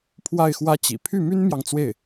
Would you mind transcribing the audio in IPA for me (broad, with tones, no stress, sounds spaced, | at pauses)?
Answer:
pʰ w a˥˩ ɪ̯ x w ä˥ t͡ɕ ḭ˨˩ pʰ y˥˩ m y˥ n m j ɑ˨ ŋ t͡s w e˥˩ ɪ̯